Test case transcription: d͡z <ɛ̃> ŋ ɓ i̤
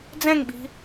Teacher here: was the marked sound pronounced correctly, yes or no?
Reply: yes